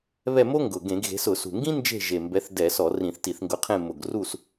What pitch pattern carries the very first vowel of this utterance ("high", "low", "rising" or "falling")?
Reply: falling